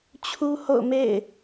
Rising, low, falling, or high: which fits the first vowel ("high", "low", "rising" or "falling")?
high